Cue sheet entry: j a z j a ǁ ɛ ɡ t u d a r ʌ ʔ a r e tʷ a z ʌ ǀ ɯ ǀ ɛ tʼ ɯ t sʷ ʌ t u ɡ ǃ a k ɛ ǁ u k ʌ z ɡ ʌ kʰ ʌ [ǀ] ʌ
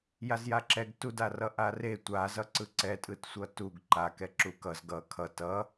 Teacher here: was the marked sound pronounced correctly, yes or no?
no